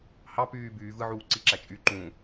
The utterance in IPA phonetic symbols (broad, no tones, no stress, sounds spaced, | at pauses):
h ɑ p yː b yː v ɯ ʕ uː ǀ i ǁ æ t͡ʃʼ y ǃ ũ